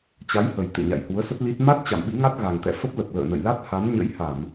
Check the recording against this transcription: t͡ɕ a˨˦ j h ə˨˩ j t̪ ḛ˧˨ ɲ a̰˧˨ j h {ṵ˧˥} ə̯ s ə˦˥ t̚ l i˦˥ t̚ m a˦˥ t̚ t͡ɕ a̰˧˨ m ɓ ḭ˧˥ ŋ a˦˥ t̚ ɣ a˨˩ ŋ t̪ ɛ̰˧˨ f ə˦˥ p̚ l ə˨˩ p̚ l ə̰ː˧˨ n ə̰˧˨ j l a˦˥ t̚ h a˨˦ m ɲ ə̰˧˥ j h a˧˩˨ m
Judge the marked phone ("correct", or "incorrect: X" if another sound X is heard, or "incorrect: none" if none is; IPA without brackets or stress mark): incorrect: u˨˦